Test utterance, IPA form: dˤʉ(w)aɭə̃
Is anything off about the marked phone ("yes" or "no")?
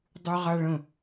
yes